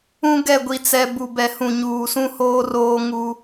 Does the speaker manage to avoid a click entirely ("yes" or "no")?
yes